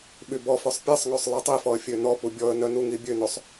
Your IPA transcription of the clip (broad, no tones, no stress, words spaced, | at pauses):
ɓybɔfœsˤ pʲɛsˤŋøsˤ lˠitˤifɔə̯ fʲønɔpu bʲɔə̯nœ nuŋibʲønosˤ